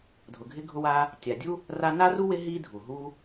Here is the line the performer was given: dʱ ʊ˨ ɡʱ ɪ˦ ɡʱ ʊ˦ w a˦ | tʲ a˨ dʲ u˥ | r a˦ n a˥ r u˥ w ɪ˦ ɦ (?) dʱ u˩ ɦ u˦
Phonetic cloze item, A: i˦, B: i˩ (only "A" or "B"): A